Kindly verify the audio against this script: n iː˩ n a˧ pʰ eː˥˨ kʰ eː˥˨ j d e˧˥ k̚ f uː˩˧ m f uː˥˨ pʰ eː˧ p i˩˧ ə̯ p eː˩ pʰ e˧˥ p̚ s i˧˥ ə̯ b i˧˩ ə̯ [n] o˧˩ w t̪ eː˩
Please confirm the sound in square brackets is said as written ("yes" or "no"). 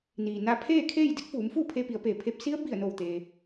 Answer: yes